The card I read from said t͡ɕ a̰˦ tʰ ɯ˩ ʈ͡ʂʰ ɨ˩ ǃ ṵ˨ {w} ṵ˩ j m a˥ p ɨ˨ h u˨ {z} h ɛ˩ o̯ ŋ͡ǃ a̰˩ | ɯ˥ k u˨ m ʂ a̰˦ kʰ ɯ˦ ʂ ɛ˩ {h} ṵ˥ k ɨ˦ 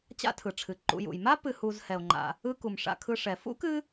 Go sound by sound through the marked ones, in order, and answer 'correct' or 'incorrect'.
incorrect: j, correct, incorrect: f

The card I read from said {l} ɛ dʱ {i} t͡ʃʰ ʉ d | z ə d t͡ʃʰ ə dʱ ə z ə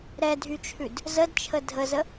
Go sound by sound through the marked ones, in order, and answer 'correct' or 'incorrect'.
incorrect: ɾ, incorrect: y

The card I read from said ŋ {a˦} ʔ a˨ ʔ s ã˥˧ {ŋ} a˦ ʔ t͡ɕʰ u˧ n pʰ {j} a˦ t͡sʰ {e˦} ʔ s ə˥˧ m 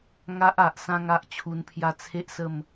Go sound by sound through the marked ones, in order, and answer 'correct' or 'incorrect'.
correct, correct, correct, correct

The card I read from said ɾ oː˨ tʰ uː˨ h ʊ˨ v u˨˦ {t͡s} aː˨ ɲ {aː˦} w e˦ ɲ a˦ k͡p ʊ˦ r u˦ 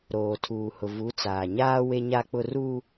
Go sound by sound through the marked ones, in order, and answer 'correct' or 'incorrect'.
correct, correct

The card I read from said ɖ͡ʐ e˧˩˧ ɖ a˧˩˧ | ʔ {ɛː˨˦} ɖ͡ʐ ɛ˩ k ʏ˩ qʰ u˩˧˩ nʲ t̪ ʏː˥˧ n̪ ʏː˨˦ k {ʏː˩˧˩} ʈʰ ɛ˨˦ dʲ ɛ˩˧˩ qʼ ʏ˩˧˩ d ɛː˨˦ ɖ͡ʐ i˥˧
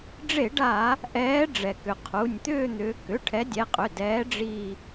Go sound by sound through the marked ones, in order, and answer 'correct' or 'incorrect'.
correct, incorrect: ʏ˩˧˩

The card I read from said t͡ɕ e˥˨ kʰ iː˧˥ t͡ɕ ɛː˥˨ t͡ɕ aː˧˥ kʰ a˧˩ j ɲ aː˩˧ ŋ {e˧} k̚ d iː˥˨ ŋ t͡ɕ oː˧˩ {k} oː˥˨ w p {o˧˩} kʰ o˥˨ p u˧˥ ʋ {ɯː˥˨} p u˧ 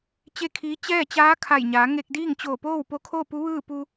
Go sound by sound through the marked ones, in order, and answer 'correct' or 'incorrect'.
correct, incorrect: p, incorrect: o˧˥, correct

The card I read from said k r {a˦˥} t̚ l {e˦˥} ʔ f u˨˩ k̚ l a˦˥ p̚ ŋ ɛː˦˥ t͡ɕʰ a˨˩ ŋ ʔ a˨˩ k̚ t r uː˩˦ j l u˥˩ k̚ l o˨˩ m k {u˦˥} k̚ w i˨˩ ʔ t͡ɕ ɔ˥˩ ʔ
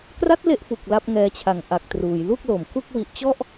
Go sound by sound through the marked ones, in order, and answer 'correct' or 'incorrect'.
correct, incorrect: e˥˩, incorrect: u˥˩

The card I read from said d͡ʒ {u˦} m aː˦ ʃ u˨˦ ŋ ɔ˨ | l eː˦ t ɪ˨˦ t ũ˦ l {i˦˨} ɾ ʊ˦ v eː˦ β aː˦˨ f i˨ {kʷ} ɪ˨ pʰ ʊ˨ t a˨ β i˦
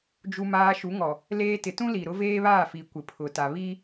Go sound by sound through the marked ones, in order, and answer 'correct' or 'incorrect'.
correct, incorrect: i˨, correct

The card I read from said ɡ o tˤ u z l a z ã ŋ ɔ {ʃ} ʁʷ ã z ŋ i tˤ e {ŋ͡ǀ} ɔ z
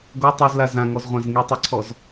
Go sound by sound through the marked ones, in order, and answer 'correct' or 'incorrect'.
incorrect: z, incorrect: ǀʰ

